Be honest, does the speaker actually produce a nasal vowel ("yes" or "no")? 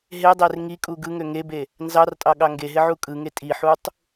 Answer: no